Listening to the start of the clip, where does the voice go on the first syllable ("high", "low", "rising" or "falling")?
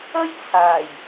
high